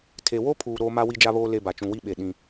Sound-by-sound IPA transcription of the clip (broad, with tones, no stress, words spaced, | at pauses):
tʰe˨wo˦pʰuː˨ ɾoː˦ma˦ wi˦d͡ʒa˦βoː˦ le˦ba˨ t͡ʃũ˨wi˦ɓe˨ ɗĩ˦